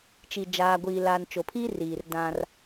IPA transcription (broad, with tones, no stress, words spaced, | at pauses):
t͡ʃi˨d͡ʒaː˨ɡʷiː˨laː˨n t͡ʃo˨pʰi˦riː˨r dã˦r